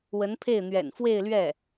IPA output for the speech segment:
w ə˧˥ n pʰ e˥˩ ɪ̯ n̪ ɥ ɛ̰˨˩ n f w e˥˧ ɪ̯ l ɥ ɛ˥˩

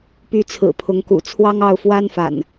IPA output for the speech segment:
p y˨˦ t͡sʰ ɹ̩˨˩ pʰ ʊ˨˦ ŋ k ṵ˨˩ t͡sʰ w ɑ˦ ŋ ɑ˥˨ ʊ̯ f w a˦ n f a̰˨˩ n

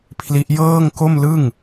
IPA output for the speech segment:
pʰ l i˦˥ ʔ j ɤː˥˩ ŋ k o˥˩ m l ɯ˥˩ ŋ

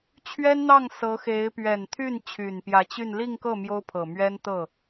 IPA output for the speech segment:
t͡ɕʰ ɥ ɛ˥ n n̪ ɑ˥˩ ŋ s ɤ˧˥ x e˧˥ ɪ̯ p ɥ ɛ˨˩ n t̪ʰ y˥˩ n t͡ɕʰ y˨˩ n p j ä˧˥ t͡ɕ y˥˧ n l i˥˧ ŋ k ɤ˥˩ m j o˥ ʊ̯ pʰ ɤ˨˩ m ɥ ɛ˥ n t̪ ɤ˥˩

